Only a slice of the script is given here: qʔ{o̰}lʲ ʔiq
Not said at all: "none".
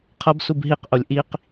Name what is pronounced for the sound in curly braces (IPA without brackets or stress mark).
o